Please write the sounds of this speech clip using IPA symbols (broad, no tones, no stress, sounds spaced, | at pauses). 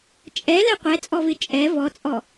t͡ʃʼ ɛ l ɛ qʷ ɛ t͡sʼ ɔ v ɪ t͡ʃʼ ɛ v ɔ t͡sʼ ɔ